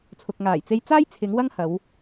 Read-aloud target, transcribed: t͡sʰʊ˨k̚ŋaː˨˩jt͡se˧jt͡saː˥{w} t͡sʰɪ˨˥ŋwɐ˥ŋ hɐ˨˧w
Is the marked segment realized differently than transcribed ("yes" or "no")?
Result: yes